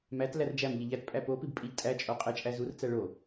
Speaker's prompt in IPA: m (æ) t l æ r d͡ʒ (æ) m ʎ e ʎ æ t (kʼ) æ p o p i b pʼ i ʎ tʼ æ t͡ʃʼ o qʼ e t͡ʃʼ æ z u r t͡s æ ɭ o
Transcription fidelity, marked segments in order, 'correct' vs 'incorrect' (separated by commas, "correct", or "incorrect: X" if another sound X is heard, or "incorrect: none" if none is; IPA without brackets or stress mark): correct, correct, incorrect: pʼ